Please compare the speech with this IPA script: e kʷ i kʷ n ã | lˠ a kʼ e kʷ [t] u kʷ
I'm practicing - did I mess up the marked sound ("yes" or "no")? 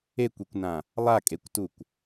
no